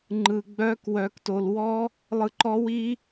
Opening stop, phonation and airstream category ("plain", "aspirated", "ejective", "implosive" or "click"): click